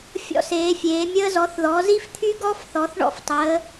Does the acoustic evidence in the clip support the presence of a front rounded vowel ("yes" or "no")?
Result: yes